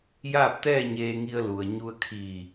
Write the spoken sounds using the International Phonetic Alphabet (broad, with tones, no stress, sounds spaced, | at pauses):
j aː˥˨ p̚ t̪ ɛː˥˨ ɲ eː˧ ŋ i˧ ə̯ l u˩ ə̯ ɲ u˧ ə̯ kʰ iː˧˩